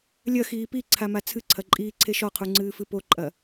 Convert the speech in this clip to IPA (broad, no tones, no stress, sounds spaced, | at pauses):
lʲ ɐ x iː p i ǀʰ a m a t͡sʰ ɨ ǀʰ ɐ ǃʼ iː ǀʰ e ʃ ɔ qʰ u ŋ͡ǀ ɨː f ɨ p o ǃʼ ɐ